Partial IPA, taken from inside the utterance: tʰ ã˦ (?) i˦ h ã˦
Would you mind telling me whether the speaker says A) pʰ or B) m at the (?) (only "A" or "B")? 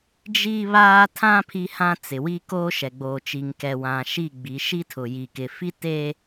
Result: A